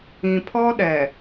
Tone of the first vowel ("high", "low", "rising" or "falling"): low